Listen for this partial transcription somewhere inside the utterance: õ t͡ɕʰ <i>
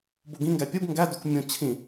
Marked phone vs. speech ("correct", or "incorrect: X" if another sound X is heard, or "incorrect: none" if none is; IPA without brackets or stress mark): incorrect: ĩ